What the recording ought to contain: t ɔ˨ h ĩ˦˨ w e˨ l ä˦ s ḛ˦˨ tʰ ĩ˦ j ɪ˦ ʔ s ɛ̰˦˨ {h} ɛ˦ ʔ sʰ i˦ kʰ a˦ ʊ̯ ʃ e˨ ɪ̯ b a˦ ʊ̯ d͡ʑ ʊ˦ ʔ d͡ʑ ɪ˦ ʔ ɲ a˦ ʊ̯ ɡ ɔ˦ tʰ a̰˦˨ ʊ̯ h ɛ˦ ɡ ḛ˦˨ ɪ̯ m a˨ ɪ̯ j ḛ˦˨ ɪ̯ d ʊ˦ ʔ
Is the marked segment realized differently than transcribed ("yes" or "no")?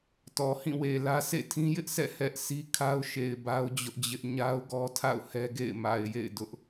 no